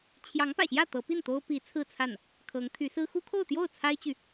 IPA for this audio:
t͡ɕʰ j ɑ˧˥ ŋ p ä̰˨˩ ɕ j ä˥˩ t̪ ɤ˧˥ p i˥˩ n t̪ o˥ ʊ̯ p i˧˥ t͡sʰ ɹ̩˥˧ t͡sʰ a˥˩ n | kʰ ɤ˧˥ ŋ t̪ʰ y˧˥ s ɹ̩˥ x u˥ kʰ o˥˧ ʊ̯ t̪ j o˥˩ ʊ̯ t͡sʰ a˥ ɪ̯ t͡ɕ y˨

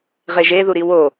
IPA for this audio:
ʁ e ʒ e ð u ɾ i w o

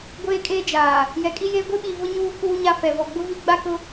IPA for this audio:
ɡʷ eː˦ kʼ eː˦ d͡ʒ aː˨ | j ɛ˨ kʼ i˦ j eː˦ ɡʷ e˦ ɓ iː˨ v ʊ˦ ɲ uː˦ k uː˦ ɲ a˦ f ɛ˨ v ɔ˨ ɡ͡b ʊ˦ v i˦ ɡ͡b a˦ k ʊ˦

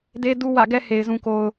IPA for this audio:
d e˦ d u˦ w ä̰˦˨ ɡ ɛ˦ h e˨ ɪ̯ z ũ˨ k o˨ ʊ̯

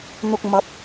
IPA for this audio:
n̪ ʊ˨ k̚ m ɐ˨˥ p̚

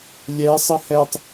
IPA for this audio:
lʲ ɛ sˤ ə h ɛ tˤ

